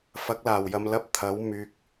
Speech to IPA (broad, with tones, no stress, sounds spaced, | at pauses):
f ɐ˨˥ k̚ l aː˨˩ w j ɐ˨ m l ɐ˧ p̚ t̪ʰ ɐ˨˥ w m yː˨ k̚